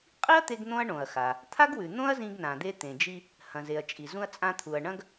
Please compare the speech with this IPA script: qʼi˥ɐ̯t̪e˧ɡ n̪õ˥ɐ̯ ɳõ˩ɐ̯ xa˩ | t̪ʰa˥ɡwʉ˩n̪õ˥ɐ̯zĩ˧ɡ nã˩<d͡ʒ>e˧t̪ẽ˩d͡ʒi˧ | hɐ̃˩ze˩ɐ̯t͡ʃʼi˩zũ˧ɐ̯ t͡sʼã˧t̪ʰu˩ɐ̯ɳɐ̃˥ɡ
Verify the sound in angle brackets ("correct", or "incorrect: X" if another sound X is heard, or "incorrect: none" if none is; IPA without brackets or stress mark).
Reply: incorrect: d̪